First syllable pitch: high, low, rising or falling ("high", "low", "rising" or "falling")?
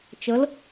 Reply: rising